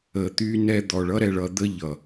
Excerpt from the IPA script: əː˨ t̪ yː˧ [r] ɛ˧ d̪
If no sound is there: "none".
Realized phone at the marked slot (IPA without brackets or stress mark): n